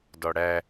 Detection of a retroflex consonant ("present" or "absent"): present